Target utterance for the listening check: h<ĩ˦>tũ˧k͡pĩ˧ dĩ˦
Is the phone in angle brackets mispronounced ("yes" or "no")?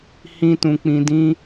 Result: no